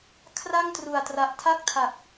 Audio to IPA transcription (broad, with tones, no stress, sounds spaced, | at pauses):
kʰ r a˥˩ ŋ t r u˨˩ a̯ t r a˨˩ ʔ tʰ a˥˩ k̚ tʰ a˨˩ k̚